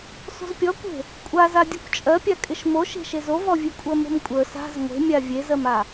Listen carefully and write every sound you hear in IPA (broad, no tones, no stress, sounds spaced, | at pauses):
s o̤ z pʲ ɔ kʷ e̤ | kʷʼ a z a dʲ ɔ kʷ t͡ʃʼ ɜ pʲ a kʼ ɪ ʃ m o ʃ e̤ ʃ e z o v ɔ vʲ e kʷʼ ɜ m o̤ m kʷʼ ə˞ s a̤ z ŋʷ e̤ mʲ a vʲ e z ɜ m a